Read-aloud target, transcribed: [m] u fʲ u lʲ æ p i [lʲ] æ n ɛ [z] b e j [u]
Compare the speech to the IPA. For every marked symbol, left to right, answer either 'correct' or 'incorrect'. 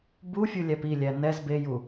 incorrect, correct, correct, correct

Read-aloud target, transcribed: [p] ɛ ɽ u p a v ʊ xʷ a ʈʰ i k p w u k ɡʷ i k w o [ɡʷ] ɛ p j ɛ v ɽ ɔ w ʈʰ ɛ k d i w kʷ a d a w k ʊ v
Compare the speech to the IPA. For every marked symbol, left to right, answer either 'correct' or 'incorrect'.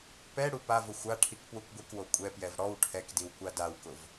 correct, incorrect

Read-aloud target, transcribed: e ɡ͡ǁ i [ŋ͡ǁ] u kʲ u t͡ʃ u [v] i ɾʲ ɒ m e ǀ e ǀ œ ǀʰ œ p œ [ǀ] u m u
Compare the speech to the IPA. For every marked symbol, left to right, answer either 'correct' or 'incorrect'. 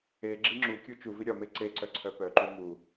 correct, correct, incorrect

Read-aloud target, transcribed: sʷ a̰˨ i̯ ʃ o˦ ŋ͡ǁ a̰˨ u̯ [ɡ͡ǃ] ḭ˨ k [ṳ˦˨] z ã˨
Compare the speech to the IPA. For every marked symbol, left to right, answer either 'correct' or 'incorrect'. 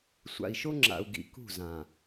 incorrect, correct

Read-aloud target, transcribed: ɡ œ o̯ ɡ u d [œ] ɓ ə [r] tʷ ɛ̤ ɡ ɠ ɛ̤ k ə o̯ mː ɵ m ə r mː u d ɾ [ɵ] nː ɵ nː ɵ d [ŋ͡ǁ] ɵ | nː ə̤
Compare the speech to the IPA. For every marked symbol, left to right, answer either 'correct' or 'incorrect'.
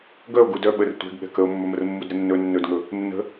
correct, correct, incorrect, incorrect

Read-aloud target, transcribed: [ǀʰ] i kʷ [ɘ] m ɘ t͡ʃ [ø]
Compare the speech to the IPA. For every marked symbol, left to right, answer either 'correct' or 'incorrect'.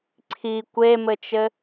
correct, incorrect, incorrect

